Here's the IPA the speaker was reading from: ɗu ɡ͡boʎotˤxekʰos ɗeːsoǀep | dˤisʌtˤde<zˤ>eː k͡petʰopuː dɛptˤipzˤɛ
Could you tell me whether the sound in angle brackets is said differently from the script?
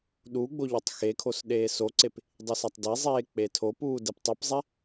no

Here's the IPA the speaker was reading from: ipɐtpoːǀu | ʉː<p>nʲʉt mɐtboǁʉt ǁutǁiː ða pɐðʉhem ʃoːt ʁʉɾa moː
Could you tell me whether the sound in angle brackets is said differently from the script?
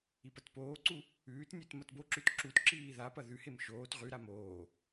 yes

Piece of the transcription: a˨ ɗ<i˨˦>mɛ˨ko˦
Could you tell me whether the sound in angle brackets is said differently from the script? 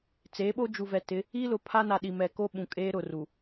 yes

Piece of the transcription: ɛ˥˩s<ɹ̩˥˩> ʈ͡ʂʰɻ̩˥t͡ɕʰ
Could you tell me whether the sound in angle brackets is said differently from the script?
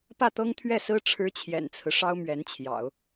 yes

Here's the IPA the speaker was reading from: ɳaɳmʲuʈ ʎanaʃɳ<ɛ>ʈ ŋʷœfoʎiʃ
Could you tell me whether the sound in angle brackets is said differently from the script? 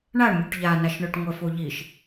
yes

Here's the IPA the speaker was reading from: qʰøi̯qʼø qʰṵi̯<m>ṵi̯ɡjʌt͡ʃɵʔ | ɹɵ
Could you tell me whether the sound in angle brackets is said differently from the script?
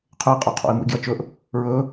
no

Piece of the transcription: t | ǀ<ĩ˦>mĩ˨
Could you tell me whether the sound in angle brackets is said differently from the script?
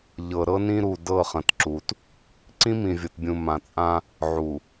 no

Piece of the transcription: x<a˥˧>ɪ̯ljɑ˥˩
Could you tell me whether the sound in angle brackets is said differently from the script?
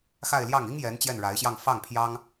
no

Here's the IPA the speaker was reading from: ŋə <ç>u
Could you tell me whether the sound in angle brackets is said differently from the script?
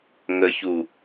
no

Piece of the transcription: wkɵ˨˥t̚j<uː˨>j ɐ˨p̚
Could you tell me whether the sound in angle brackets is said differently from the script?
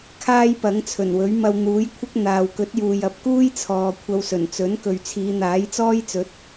no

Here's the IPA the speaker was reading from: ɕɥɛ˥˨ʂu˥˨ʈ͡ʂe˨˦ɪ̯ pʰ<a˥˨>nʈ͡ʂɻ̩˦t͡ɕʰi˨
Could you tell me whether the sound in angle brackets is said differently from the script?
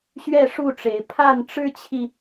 no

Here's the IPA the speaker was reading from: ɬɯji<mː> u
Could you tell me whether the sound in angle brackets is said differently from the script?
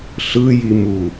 yes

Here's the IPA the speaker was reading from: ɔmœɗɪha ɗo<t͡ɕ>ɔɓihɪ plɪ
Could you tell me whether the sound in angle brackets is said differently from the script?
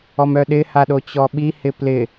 no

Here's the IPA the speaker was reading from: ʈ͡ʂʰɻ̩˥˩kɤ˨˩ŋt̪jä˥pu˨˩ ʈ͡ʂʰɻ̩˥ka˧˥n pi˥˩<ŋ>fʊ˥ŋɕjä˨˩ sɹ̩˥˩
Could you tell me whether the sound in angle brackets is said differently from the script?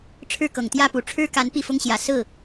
yes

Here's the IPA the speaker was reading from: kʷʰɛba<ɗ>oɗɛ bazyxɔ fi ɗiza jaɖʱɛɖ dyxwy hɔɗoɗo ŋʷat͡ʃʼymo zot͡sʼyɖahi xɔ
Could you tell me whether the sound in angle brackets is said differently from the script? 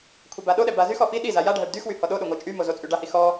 no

